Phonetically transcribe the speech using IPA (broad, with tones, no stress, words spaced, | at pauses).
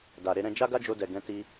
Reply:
da˨ɾe˧ɾɛ̃˧ d͡ʒa˦ɡa˦d͡ʒo˧dɛ˨ ɡɛ̃˧ ti˧